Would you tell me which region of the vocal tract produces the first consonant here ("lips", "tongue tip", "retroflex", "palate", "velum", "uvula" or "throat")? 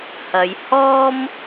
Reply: throat